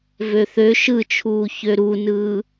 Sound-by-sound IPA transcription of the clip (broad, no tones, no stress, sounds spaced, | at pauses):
v ø θ ø ʃ ɯ t͡ʃʰ uː ç ø ɾ u n ɯː